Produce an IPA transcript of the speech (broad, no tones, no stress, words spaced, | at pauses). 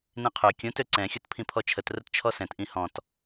nẽqʰø kʲõt øǀɛ̃ xʲotpʰĩpʰɔt͡ʃʰət rətt͡ʃʰɔsɛ̃t ʔĩhɔ̃t